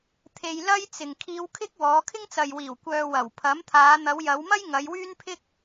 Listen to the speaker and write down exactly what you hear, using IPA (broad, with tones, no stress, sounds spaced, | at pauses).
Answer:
t̪ʰ e˧ j l ɐ˥ j t͡s ɪ˨ ŋ kʰ iː˧ w kʰ ɪ˥ k̚ w ɔː˨˧ kʰ ɪ˥ ŋ t͡s ɐ˨ j w iː˨˩ w kʷ œː˨ w ɐ˨˩ w pʰ ɐ˨˥ m t̪ʰ aː˨˧ n̪ ɐ˨˧ w j ɐ˨˧ w m ɐ˥ j ŋ ɐ˨˧ j w yː˥ n pʰ ɪ˥ k̚